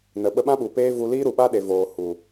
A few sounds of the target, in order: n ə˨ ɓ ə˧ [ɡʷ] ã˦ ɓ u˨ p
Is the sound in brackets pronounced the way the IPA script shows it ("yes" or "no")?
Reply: no